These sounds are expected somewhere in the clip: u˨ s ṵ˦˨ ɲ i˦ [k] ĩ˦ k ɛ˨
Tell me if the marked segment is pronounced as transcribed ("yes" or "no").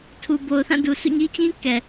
no